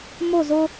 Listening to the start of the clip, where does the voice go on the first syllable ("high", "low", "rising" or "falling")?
falling